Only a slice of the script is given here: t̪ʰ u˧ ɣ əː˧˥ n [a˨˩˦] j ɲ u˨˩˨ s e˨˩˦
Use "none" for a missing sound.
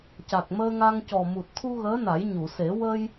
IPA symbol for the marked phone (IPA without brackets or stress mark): a˨˩˦